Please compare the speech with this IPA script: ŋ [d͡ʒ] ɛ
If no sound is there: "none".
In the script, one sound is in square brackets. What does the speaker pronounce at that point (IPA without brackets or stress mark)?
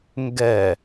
ɡ